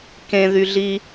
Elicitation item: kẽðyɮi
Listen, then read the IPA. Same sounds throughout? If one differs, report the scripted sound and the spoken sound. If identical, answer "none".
none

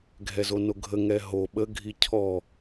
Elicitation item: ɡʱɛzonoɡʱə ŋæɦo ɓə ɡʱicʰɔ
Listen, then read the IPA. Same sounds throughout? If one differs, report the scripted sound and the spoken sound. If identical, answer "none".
æ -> ɛ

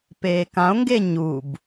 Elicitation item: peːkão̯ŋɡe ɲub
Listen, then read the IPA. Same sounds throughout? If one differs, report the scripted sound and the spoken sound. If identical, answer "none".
none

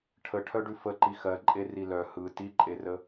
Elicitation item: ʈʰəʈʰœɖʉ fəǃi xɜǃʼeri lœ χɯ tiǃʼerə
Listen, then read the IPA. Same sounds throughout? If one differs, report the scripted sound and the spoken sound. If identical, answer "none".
χ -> h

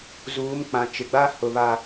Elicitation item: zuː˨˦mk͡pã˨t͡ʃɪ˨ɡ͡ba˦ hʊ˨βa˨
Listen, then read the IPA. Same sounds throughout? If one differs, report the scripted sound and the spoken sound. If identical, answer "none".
none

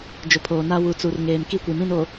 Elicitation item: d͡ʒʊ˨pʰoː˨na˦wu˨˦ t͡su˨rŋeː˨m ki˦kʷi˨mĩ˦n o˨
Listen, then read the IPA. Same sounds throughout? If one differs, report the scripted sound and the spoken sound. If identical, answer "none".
none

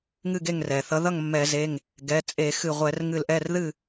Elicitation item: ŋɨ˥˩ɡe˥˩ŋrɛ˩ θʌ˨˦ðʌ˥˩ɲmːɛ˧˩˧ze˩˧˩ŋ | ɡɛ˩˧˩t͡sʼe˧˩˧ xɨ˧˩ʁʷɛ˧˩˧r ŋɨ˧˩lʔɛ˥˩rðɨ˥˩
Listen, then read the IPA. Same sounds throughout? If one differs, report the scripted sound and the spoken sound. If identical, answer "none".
ɲ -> ŋ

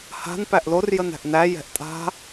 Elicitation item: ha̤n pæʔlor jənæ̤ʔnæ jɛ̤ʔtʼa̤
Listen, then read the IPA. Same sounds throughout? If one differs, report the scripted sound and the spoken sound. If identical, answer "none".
none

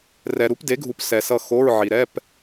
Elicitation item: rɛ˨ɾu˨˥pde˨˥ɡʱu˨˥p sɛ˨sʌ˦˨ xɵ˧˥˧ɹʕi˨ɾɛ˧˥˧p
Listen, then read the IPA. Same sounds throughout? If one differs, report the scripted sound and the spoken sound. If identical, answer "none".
ɵ˧˥˧ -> o˧˥˧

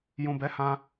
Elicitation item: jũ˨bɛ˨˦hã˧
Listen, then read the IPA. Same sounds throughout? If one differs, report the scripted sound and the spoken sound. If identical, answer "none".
none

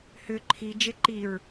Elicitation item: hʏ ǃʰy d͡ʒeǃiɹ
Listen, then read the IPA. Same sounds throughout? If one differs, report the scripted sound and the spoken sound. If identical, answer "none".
y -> i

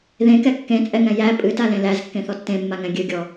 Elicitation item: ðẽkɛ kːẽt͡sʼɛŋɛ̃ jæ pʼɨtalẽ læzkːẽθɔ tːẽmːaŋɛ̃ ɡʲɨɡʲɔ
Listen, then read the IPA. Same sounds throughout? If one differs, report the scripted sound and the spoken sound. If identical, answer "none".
none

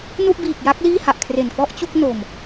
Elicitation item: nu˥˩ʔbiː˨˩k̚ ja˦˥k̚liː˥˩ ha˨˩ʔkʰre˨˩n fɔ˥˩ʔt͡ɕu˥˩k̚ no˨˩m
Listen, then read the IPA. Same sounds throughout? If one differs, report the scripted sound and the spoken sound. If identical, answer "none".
none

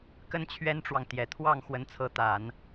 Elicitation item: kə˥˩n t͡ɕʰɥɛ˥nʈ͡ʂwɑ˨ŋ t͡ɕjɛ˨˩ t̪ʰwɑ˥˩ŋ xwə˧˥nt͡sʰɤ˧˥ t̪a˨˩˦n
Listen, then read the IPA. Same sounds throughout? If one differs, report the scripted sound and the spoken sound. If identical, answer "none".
t͡ɕ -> t̪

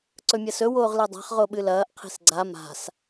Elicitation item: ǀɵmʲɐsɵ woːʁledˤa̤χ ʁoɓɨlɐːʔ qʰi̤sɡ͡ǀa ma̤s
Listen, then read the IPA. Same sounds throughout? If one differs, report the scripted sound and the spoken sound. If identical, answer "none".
none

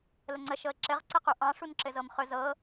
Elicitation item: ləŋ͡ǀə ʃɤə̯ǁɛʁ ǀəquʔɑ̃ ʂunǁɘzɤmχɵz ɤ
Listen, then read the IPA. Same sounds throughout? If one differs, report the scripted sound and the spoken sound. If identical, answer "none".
ɛ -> ɘ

